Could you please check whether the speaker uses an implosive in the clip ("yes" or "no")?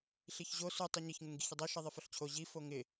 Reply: no